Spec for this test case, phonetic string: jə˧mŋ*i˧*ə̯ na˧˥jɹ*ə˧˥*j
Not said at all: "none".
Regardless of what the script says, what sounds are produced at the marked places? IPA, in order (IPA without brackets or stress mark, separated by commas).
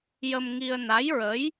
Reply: i˧, ə˧˥